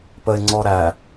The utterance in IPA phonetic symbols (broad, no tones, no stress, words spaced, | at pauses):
pəɪ̯ŋ͡ǀɔ ɾæ